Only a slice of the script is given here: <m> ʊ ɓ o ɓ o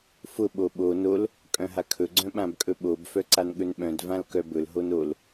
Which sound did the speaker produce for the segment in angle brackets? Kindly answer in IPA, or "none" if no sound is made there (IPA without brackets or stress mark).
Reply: f